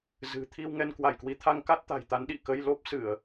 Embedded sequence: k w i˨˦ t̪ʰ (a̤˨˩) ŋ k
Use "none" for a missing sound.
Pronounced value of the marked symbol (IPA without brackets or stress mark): a˧